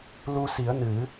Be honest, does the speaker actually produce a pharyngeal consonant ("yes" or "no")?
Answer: no